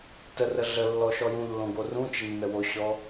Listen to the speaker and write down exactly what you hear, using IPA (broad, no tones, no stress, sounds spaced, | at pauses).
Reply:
t ə r ə ɮ ə lː ɔ ʃ ɔ j ũ lː õ ɡ o r ũ t͡ʃ ə nː ə w o ɕ ɔ